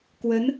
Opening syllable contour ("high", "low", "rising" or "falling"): rising